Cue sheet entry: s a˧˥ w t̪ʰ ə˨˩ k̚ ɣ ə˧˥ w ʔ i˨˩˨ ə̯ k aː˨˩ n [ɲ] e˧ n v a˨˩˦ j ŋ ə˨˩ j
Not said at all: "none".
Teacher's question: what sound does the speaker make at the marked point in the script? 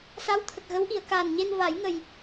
ɲ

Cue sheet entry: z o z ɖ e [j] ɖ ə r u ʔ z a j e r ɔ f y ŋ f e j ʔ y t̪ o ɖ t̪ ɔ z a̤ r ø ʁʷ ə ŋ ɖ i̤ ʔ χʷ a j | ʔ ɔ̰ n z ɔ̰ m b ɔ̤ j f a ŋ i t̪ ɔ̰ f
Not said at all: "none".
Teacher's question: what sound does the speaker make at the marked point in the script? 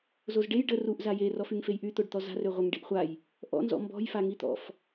j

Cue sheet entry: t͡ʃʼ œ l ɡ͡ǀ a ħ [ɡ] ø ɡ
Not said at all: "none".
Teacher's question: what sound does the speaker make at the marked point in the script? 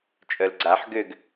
ɡ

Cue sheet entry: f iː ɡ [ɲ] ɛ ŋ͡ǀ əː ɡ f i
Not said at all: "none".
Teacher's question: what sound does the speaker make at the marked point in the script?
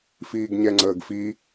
ɲ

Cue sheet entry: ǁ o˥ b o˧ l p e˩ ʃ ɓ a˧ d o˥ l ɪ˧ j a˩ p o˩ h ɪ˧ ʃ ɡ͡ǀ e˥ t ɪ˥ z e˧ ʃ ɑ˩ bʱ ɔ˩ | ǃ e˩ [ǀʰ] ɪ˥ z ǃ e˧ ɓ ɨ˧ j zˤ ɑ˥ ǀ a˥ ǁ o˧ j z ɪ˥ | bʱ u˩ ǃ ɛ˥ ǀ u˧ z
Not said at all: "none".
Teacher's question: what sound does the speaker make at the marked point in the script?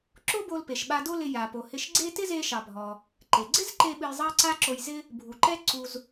ɡ͡ǀ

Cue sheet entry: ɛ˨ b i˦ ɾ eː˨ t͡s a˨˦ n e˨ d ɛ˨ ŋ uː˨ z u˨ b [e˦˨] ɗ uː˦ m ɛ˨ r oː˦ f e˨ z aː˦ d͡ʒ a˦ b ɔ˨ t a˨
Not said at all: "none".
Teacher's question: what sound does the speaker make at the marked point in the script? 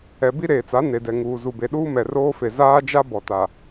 e˨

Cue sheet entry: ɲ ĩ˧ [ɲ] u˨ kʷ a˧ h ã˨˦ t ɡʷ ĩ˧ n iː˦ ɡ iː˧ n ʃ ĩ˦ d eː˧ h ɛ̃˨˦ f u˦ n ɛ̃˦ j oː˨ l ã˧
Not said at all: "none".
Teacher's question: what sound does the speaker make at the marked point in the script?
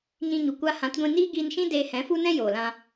ɲ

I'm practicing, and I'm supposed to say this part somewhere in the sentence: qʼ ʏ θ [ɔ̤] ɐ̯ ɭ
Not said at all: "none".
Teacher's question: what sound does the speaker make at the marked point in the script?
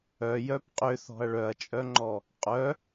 ɔ̤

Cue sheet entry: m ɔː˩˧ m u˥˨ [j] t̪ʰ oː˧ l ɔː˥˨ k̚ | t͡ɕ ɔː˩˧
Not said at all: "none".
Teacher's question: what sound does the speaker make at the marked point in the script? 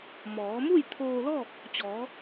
j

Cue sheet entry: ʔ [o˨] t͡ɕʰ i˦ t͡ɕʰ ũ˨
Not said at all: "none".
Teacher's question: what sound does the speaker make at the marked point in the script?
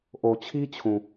o˨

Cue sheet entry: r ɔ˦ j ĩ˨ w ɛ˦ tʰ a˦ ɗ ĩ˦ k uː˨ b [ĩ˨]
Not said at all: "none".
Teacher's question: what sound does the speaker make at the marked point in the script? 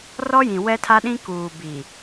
i˨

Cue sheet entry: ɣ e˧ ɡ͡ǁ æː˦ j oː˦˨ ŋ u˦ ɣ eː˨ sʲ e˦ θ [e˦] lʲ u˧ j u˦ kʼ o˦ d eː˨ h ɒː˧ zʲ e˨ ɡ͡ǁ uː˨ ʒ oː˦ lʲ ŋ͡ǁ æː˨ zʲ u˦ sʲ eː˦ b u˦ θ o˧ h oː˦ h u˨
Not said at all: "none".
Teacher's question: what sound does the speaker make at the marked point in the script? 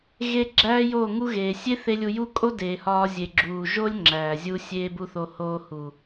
e˦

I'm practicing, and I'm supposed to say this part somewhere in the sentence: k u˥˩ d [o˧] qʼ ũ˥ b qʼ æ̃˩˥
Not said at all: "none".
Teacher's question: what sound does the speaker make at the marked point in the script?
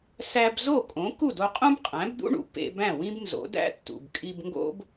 o˧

